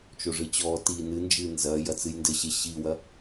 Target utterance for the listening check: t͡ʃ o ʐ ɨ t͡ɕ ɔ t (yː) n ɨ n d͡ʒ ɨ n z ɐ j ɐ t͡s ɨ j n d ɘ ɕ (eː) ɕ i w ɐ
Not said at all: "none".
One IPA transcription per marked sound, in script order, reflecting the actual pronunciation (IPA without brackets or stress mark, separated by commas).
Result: iː, e